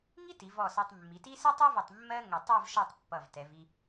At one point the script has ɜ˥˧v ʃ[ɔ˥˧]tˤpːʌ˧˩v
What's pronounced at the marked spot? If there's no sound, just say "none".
ɔ˥˧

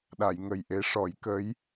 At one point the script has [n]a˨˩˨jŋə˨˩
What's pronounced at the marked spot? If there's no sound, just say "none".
ɗ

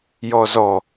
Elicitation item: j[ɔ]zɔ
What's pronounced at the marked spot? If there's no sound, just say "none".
ɔ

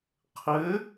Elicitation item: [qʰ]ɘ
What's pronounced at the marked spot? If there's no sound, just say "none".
qʰ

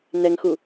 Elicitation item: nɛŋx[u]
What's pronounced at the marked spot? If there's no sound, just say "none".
u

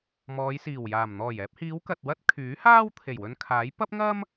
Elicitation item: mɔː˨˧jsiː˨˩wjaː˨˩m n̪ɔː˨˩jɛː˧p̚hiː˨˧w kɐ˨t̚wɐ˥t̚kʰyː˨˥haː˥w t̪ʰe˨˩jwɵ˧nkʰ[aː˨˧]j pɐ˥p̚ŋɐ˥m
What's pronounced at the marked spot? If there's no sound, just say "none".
aː˨˥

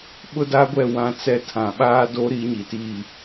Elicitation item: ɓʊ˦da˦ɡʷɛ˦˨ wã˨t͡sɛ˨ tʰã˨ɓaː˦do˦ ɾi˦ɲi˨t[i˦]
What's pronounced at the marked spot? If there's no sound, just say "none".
i˦˨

